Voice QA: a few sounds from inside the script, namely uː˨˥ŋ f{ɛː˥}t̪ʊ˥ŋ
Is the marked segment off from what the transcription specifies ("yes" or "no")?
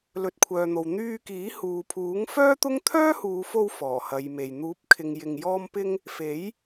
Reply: yes